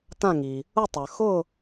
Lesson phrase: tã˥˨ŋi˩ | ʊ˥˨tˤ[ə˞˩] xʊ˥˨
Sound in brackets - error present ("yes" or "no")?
no